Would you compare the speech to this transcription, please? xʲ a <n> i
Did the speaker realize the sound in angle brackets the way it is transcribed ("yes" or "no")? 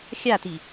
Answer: no